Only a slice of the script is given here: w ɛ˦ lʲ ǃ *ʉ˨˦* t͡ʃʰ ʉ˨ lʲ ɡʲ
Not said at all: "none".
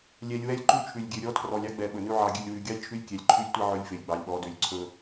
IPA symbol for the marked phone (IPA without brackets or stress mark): ʉ˦˨